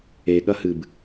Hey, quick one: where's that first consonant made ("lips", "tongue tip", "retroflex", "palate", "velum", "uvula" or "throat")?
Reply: velum